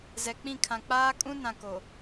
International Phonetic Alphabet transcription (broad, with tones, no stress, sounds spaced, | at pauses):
z ɛ˨ k͡p ĩ˦˨ kʰ ã˨ k͡p aː˦ kʼ ũ˦ n ã˨ k o˨